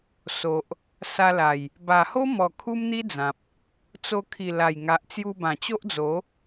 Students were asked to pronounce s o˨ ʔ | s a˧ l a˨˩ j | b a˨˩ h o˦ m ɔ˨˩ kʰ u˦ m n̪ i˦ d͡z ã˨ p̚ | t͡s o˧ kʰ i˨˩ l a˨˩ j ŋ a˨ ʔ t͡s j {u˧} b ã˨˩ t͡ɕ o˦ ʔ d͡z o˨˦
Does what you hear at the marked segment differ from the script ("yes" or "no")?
no